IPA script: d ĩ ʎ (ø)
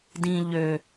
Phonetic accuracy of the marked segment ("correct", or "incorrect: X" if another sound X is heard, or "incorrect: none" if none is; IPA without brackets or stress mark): correct